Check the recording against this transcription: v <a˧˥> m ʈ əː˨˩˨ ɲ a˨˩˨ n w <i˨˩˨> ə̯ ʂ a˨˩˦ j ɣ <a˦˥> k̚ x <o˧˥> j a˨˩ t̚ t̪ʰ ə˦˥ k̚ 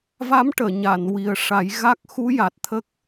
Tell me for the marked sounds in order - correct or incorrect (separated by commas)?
correct, incorrect, correct, incorrect